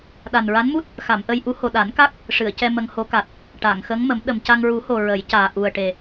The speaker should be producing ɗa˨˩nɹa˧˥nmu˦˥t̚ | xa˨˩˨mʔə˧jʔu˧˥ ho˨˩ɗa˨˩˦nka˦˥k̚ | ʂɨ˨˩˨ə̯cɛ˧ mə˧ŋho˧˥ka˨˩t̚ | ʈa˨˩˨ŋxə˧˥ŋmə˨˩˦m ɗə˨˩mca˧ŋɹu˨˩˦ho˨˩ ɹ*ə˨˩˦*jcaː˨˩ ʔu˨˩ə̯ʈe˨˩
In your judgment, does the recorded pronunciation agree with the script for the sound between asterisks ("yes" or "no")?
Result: yes